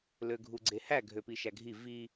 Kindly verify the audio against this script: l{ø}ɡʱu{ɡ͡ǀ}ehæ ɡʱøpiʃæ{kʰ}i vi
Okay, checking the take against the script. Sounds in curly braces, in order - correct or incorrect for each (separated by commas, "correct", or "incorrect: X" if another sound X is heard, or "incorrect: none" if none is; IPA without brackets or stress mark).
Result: correct, correct, incorrect: ɡʱ